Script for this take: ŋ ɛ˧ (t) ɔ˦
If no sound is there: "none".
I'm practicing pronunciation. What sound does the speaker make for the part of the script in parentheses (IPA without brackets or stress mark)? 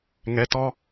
t